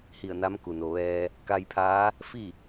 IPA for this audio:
h i˧˩ ə̯ n a˧˥ m k u˩ n o˩ ʋ ɛː˧ | k a˧ j pʰ aː˧˥ | f i˥˨

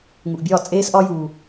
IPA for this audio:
ŋ u˨ ʔ bʲ ɒː˦˨ t͡sʼ eː˦ s ʔ ɒ˦ j uː˦

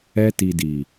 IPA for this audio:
ɛ˧ t i˨ d i˨

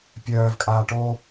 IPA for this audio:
pʲ œː v kʼ aː ʈ o

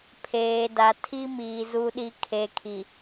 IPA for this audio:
pʰ eː˨ d a˨ tʰ i˦ m iː˨ z u˨ ɗ i˨ kʰ e˨ kʰ i˨

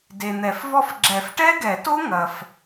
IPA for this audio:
d e˨ n̪ ɛ˨˩˦ f v ɔ˥˧ f ɡ͡ǁ ɛ˨˩˦ f ʈ ɛ˦˥ ɡ ɛ˨˩˦ t o˦˥ ŋ ɐ˨ f

